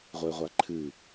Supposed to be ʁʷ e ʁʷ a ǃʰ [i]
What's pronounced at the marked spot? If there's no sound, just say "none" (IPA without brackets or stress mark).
ɨ